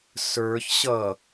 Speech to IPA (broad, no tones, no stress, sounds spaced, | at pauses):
s ə˞ ç ɕ ʌ